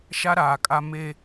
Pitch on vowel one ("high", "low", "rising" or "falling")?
high